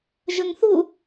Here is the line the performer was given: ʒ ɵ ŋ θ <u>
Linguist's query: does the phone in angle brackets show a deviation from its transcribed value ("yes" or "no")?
no